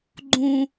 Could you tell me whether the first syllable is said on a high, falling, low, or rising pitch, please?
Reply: low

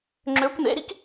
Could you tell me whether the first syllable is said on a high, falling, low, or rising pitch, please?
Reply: rising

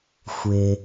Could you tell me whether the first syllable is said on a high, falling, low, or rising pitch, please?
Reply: low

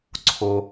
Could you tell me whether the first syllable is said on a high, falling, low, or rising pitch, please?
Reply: low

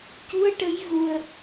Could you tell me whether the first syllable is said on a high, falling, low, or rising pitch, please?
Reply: rising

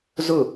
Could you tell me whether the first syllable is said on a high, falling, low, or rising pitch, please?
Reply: falling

